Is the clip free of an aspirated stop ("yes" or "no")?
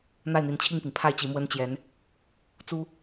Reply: no